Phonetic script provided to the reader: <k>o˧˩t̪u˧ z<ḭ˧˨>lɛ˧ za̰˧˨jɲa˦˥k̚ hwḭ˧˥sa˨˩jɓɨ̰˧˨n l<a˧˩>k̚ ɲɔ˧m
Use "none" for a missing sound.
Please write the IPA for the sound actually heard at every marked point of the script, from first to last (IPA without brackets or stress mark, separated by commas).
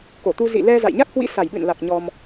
k, ḭ˧˨, a˨˩